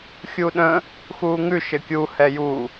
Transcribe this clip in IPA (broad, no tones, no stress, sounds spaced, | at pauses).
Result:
xʲ u ɗ ə̃ | x uː ŋ ʉ ʃ ɘ kʲ u h ɛ j u